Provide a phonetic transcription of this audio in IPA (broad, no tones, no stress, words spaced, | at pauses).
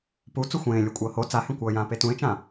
pu t͡suxʷẽː lʲokʷʼʌːho t͡sahẽkʷʌː jãːpetũɪ̯t͡ʃã